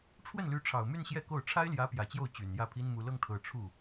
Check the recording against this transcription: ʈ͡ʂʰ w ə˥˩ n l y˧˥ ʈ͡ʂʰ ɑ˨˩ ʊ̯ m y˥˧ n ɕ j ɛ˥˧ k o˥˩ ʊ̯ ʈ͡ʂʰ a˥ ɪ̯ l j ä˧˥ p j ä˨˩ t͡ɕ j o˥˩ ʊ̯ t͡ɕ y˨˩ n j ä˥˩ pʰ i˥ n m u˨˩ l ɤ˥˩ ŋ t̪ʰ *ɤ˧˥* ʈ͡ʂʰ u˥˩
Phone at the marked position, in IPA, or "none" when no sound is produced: ɤ˨˩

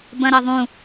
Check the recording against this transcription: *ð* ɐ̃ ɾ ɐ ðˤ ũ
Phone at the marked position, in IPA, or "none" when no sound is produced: b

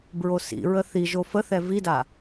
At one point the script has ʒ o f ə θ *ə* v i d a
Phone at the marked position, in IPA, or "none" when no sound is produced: ɛ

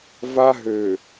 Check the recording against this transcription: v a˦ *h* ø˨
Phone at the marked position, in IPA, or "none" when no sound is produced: ɦ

